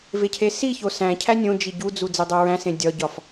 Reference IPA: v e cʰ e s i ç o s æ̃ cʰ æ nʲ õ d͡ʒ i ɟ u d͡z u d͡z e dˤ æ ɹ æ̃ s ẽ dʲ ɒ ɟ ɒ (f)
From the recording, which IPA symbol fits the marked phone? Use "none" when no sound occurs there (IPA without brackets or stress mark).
f